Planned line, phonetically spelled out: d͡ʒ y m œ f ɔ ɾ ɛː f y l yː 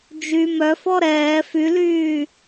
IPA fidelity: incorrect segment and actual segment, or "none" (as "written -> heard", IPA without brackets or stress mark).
none